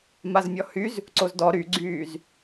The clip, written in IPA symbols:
m a z mʲ ɔ h y z | ǀ o z d ɔ ɾ y ɡ͡ǀ yː z

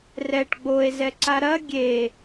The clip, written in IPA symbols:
r ɛ ʈ ɡ͡b o e̯ z ɛ ǀ a ɾ ɐ ɡʲ e

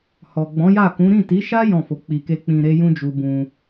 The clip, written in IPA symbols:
h ɔ˨ ɡ͡b ɔ̃˨˦ j a˦˨ k ũ˨˦ ɾ ĩ˦˨ t i˨˦ ʃ a˦ j ɔ̃˦˨ f o˨˦ k͡p i˧ k e˦ k͡p ĩ˧ ɾ e˦ j ũ˦ d͡ʒ u˧ b ũ˧

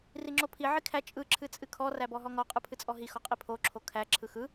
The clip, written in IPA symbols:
r i ŋ͡ǁ o pʰ i ʕ i kʰ æ t͡ʃʼ ɯ ǁʰ ɨ t͡sʼ ɨ kʰ ɔ r æ b ɔ ɦ ɔ ŋ ɔ qʼ ɯ pʰ ɨ t͡sʼ ɔ ɦ i x ɔ qʼ i pʰ o ǁʰ o kʰ æ ǁʰ ɯ x ɯ

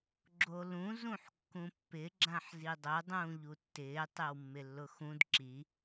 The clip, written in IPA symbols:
ɡ͡ǁ o l ũ z ũ ħ kː ũ pː ɪ ɡ͡ǁ ã ħ z i dˤ ʊ dˤ ũː ʎ u tː ɪː tˤ e w mː ɪ lː ʊ x ũ d ǁ i

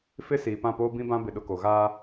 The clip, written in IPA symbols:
f ɪ˦ s iː˨ p ã˦˨ p oː˦ b ĩ˦ b ã˦ b ɪ˦˨ ɗ ʊ˦ k o˨ ɣ aː˦

